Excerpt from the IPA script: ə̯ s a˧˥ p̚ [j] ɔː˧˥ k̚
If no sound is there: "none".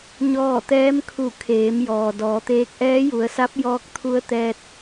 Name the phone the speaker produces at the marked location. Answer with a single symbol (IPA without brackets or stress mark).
j